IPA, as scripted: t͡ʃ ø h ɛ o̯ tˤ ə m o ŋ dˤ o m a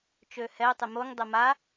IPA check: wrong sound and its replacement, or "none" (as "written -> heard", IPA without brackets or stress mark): none